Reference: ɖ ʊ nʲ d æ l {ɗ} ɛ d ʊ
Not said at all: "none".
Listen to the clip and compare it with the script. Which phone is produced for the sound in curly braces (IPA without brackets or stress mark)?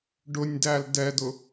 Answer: d